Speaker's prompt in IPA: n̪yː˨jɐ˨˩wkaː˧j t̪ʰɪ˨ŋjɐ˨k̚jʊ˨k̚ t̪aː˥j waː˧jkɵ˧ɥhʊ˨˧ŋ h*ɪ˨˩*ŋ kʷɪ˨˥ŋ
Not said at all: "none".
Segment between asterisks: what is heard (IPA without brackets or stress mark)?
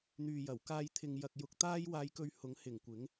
ɪ˨˩